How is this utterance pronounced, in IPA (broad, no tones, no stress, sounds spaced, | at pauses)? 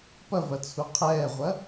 p ɐ v ɐ t͡sʰ u qʰ ɛː ʁʷ ɐ